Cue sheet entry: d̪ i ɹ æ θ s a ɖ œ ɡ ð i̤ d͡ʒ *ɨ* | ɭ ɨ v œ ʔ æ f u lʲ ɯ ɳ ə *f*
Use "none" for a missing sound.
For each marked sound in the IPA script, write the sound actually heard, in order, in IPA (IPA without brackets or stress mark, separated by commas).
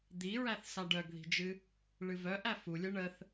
ɨ, θ